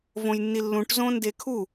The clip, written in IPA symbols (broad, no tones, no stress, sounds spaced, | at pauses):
v õ j nː i lː ũ ʈ z õ n d e kʰ u